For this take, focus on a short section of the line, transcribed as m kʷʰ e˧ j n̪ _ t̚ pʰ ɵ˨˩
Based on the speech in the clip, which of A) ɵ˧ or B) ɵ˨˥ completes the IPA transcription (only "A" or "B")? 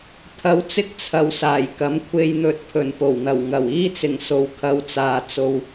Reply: A